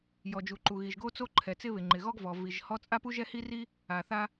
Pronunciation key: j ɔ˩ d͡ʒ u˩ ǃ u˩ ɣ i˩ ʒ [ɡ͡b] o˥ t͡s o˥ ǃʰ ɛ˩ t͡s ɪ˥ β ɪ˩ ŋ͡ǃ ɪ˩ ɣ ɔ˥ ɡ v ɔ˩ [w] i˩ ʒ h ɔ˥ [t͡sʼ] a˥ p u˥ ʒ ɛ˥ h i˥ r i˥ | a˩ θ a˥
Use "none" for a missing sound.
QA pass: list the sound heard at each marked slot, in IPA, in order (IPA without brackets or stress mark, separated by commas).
ɡ, v, t͡sʼ